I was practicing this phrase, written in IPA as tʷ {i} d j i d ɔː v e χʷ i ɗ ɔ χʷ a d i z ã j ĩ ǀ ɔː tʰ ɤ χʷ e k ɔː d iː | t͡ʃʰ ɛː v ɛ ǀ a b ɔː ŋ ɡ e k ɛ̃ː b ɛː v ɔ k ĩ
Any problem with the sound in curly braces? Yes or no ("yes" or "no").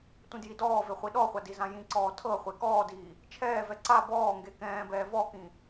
yes